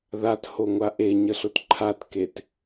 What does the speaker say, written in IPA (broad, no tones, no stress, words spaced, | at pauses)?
ðathoŋʷa ʔeɲəɬʊt ǃʰatket